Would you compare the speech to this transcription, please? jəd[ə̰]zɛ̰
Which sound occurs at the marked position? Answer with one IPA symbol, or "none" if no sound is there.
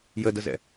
ə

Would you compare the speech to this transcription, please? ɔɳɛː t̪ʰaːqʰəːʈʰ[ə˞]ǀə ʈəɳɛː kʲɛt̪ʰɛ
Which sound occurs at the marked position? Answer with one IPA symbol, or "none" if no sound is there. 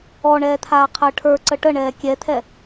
ə˞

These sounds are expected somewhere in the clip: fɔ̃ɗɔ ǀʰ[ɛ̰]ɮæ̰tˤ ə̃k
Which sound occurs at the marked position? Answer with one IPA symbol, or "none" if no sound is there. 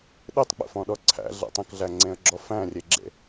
æ̰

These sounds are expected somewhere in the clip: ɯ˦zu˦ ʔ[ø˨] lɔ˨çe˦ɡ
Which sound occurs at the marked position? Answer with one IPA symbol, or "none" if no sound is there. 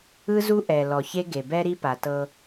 ɛ˨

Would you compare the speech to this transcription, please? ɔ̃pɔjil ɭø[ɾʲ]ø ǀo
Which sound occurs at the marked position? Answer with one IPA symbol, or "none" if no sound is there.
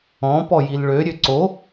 ɾʲ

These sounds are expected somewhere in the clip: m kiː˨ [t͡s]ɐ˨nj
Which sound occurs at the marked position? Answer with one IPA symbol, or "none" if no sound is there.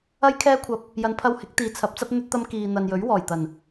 n̪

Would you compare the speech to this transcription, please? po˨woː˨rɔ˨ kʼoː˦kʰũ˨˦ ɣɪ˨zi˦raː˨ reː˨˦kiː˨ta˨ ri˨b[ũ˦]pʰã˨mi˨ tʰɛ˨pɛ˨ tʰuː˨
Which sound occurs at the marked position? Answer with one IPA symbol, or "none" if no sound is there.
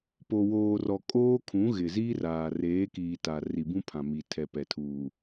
ũ˦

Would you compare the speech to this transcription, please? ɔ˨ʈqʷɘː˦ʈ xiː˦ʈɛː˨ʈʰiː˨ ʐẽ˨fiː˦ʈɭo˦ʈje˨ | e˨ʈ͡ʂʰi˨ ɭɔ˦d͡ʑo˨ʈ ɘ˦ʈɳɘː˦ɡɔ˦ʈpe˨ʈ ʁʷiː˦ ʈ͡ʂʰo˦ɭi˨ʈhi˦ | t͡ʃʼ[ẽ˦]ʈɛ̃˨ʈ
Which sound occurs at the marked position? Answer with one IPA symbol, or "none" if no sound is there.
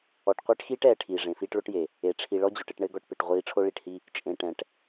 ẽ˨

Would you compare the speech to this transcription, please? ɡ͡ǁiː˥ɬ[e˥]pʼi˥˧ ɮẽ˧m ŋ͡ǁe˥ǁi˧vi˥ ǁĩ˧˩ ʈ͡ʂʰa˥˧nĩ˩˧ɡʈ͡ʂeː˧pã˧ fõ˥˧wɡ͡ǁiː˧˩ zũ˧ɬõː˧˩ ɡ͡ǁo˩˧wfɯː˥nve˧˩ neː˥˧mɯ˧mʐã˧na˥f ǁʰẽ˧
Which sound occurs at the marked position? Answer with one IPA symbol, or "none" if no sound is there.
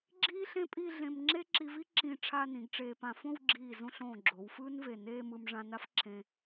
ẽ˥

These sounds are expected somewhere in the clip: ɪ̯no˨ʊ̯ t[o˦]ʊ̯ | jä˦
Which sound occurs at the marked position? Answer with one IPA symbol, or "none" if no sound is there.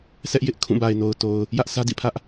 o˨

